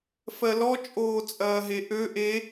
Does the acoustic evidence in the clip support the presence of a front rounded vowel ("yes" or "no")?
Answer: yes